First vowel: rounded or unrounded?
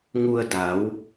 rounded